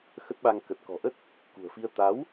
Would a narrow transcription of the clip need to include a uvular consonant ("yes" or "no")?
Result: no